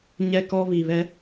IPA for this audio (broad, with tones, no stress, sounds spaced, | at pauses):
ɲ ɛ˦ k ɔ˦ β i˨ β ɛ˦